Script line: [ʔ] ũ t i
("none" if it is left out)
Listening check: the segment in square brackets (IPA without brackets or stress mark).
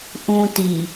ʔ